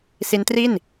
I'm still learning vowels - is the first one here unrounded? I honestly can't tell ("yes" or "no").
yes